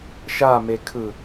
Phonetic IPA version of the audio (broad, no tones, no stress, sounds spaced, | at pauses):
ʃ a m e kʰ ɯ